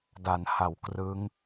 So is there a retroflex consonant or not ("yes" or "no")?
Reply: no